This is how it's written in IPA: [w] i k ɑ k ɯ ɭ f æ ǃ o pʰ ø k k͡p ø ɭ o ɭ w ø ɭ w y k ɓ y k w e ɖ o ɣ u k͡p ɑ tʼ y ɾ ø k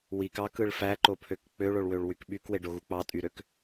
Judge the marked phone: correct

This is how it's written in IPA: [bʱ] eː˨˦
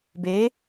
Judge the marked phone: incorrect: b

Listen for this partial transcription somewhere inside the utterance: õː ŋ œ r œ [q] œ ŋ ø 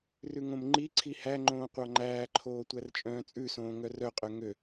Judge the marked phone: incorrect: qʼ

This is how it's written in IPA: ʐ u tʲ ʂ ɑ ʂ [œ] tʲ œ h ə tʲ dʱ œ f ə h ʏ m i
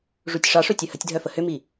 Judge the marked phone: incorrect: ɵ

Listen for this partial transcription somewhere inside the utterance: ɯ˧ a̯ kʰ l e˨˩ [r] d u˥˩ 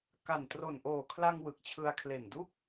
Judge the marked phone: incorrect: n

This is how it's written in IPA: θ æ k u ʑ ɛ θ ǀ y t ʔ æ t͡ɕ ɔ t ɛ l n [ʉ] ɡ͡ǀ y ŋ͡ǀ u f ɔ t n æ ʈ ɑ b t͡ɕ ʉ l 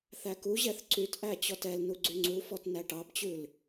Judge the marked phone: incorrect: u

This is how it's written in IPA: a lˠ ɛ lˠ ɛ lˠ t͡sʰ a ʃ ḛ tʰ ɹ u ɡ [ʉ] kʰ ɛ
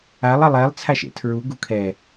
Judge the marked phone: incorrect: u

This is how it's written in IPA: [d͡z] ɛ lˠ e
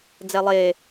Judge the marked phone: correct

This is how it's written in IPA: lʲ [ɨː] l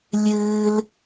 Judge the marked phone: correct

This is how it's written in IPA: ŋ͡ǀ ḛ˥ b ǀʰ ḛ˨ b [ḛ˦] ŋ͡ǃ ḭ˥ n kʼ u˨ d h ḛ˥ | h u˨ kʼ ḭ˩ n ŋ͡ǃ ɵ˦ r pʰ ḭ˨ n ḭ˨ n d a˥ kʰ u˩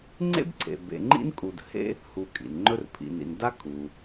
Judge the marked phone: incorrect: ḛ˨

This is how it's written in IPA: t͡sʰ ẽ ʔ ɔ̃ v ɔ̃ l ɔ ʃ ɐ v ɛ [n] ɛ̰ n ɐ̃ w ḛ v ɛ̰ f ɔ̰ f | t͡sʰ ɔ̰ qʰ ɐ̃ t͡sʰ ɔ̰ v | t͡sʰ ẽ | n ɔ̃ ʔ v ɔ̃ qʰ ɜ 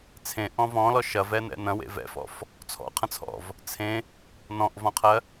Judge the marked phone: correct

